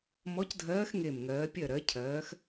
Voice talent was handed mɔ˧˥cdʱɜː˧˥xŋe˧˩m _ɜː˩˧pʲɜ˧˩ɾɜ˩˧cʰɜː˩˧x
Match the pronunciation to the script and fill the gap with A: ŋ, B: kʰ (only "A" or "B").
A